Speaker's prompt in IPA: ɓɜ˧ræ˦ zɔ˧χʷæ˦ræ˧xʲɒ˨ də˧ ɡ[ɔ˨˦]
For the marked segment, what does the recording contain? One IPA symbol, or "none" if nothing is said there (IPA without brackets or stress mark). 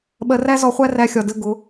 ʊ˨˦